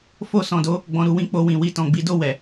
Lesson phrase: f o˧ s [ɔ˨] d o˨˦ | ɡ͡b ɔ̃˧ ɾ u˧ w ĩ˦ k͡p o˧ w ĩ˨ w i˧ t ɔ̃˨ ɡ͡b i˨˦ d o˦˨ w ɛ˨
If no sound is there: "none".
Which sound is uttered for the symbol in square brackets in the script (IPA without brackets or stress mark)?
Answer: ɔ̃˨